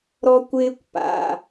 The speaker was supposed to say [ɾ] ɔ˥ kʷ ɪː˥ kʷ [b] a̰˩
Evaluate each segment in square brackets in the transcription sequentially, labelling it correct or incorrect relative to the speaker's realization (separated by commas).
correct, incorrect